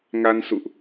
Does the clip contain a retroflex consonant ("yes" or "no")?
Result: no